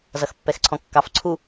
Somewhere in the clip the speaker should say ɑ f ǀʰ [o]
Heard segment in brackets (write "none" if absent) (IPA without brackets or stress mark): u